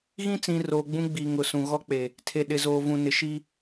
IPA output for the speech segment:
ɣ ĩ˦ t͡s ĩ˨ r oː˨ ɡ͡b ũ˦ ɡ͡b i˨ ŋ ʊ˨ s ũ˨ ɣ ɔ˦ k͡p e˨ | tʰ e˨ ɗ ɪ˨ z oː˨ v ũ˨ n ɪ˨ ʃ i˦

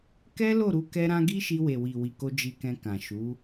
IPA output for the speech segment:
k ɛ˦ l o˦˨ ɾ u˧ k ɛ˧ ɾ ã˧ ɡ i˦ ʃ i˧ w e˨ w i˨ w i˨ k o˧ d͡ʒ i˧ k ɛ̃˧ k ã˨ ʃ u˨˦

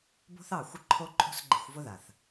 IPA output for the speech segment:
b o̤˦ θ ɑ˦˨ xʷ ɪ˦ ǃʰ o˦ ǃʼ o̤˦ s ɡ͡ǃ i̤˧ xʷ v ʊ˦ ð a˨ θ

